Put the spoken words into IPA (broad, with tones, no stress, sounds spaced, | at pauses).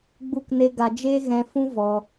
ɡ͡b u˦˨ k n e˦ ɡ a˧ d͡ʒ eː˦ ɣ ɛ̃˧ f ũ˦ v ɔ˧